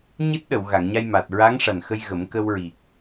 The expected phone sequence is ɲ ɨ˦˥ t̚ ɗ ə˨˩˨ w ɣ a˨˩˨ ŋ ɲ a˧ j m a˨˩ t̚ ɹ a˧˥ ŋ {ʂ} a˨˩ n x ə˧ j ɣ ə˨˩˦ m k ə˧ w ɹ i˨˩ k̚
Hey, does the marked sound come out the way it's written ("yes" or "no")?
yes